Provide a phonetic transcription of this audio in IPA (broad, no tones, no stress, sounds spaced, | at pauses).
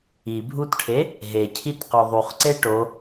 i bʱ u t ʈʰ e | ɦ e cʰ i t q o ðˤ u χ ǀ e ʈ o